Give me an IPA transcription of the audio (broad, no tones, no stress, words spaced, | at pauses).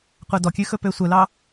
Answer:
qʷædɔkʲʉ xɵpøsʷœlɑ